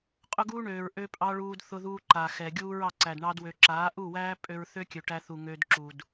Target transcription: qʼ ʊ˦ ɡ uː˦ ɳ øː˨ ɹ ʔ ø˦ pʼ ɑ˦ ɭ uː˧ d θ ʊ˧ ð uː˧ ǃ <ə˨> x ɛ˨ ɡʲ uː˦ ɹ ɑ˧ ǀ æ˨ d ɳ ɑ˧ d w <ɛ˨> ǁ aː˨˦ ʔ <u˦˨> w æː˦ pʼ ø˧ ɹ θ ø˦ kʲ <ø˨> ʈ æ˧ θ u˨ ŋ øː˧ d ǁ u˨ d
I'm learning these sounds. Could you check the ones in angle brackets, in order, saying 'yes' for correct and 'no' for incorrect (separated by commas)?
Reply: no, no, yes, yes